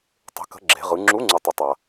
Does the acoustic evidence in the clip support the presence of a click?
yes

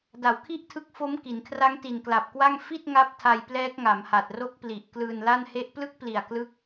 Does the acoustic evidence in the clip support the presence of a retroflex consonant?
no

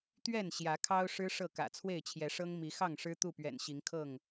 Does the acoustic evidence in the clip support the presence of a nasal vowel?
no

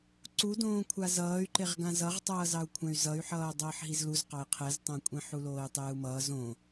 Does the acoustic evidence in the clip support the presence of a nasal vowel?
yes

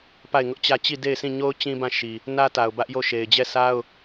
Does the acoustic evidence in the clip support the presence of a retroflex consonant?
no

